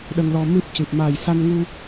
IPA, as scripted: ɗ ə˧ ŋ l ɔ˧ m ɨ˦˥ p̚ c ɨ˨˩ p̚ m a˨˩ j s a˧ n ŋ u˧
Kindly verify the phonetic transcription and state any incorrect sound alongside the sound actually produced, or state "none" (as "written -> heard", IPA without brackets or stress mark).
none